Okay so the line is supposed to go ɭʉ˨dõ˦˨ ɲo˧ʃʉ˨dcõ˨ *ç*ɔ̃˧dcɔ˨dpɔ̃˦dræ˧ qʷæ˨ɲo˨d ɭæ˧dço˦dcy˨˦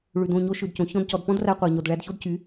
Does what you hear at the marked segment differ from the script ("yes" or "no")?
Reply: no